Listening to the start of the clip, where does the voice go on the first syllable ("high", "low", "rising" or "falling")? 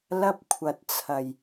high